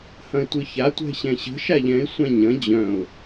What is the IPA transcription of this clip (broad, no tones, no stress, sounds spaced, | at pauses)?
h ɐ̃ ɪ̯ tʷ ɯ ç a tʷ ɛ̤ ɕ ɛ̃ ɕ ə̤ ʃ a ʎ ɛ̃ ɪ̯ sʷ ã ɲ ɐ̃ d͡ʑ œ̃ ʊ̯